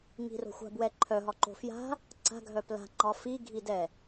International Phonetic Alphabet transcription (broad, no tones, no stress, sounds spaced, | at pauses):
ŋ i̤ r o̤ xʷ a̤ b w ɛ ǃʰ œ ɦ ɒ ǃ o̤ f j a̤ | ǀ a̤ ɡʱ œ p l a̤ ŋ͡ǃ ɒ f i ɡʱ i d ɛ